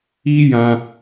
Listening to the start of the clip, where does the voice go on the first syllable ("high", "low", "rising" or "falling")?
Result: high